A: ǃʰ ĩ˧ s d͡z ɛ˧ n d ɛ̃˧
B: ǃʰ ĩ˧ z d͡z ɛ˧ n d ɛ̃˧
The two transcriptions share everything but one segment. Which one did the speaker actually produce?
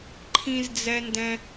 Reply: B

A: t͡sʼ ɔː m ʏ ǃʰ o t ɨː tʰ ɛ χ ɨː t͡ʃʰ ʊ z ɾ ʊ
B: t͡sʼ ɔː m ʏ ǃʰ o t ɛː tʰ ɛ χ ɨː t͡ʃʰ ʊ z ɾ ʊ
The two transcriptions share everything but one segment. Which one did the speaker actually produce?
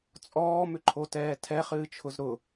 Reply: B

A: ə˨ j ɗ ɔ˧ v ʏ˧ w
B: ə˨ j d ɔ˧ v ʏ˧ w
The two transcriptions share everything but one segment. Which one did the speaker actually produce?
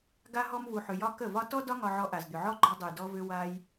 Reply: B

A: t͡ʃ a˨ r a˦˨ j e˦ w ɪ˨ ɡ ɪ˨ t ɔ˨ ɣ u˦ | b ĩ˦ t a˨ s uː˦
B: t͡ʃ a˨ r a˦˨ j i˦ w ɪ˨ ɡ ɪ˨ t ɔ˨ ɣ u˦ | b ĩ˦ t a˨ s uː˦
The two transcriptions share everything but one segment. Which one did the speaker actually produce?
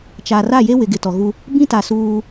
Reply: A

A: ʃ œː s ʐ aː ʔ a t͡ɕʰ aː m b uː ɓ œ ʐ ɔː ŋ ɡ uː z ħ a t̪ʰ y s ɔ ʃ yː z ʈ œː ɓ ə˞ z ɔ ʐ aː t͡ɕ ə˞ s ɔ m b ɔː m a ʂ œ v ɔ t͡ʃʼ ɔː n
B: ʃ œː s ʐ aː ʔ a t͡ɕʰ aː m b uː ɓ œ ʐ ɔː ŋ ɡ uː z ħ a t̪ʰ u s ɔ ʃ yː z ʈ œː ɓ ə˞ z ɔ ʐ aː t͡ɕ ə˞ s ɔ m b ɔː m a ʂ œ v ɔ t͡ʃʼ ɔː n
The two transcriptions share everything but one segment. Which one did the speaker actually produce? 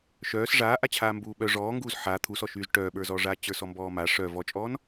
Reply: B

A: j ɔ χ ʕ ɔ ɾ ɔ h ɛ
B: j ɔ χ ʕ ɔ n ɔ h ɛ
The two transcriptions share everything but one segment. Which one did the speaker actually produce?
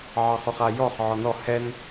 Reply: B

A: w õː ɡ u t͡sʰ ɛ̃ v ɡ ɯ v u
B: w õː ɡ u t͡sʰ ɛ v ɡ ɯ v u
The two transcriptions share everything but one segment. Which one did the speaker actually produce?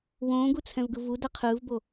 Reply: A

